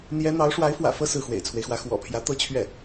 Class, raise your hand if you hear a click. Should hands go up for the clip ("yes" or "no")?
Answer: no